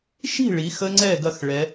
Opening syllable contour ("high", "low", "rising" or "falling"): falling